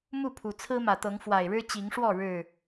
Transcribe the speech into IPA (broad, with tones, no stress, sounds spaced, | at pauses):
m u˥˨ pʰ u˨˩ t͡sʰ ɹ̩˦ m ä˨˩ t̪ ɤ˨˦ ŋ f w a˨˩ ɪ̯ ɻ ɻ̩˦ t͡ɕ i˨˦ ŋ ʂ w ɔ˥˨ ɻ ɻ̩˥˨